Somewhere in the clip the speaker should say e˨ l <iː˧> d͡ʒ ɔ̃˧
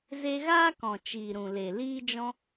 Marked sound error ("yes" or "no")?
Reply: no